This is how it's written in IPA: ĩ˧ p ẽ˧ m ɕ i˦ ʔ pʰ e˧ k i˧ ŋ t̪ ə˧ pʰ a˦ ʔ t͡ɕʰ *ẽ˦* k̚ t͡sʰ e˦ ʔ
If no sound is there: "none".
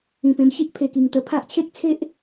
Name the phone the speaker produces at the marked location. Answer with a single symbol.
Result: e˦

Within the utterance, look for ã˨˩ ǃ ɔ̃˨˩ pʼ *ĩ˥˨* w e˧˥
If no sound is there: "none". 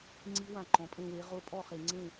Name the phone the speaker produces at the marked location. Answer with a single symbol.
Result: ẽ˥˨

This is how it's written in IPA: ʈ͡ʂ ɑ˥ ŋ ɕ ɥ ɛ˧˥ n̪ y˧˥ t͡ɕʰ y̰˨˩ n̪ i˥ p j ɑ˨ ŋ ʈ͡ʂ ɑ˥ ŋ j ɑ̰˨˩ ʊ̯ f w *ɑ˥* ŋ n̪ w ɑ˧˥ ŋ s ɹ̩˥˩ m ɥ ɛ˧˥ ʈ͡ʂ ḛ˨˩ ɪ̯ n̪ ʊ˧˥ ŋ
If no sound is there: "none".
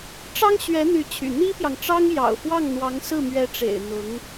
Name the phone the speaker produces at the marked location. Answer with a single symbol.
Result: ɑ˥˩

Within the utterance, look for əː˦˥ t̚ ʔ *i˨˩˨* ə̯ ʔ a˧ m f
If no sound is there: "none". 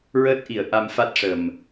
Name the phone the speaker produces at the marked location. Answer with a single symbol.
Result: i˨˩˦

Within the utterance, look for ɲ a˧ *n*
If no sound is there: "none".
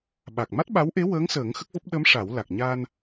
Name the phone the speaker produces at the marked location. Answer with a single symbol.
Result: n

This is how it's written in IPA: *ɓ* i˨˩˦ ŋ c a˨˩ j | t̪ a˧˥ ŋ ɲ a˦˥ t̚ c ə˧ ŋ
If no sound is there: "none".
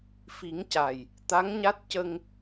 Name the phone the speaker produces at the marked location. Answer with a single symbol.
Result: f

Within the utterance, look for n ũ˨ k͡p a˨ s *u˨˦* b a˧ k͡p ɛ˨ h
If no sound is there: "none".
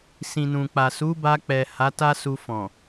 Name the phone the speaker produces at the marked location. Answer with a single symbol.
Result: u˨˦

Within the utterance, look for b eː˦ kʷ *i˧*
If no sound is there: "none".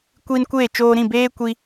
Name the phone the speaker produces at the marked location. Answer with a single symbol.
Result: i˧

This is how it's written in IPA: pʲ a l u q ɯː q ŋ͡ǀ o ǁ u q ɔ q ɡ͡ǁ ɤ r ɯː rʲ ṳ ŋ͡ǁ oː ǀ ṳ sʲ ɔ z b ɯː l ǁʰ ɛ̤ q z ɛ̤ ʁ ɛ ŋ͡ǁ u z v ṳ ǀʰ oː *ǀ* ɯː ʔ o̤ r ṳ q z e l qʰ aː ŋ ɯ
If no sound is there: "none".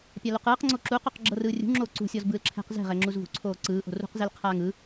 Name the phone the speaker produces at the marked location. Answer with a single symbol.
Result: ǀ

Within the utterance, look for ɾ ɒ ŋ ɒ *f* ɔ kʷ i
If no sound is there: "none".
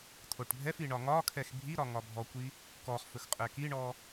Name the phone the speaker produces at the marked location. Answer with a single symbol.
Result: bʱ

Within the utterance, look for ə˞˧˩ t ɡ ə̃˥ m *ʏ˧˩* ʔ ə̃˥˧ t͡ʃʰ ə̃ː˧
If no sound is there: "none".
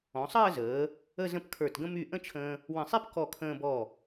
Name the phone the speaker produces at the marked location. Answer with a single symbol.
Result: y˧˩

